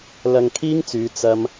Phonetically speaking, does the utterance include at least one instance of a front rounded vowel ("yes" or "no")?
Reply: yes